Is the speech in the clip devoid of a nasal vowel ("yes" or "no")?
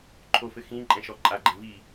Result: no